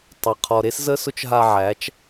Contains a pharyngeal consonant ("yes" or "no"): yes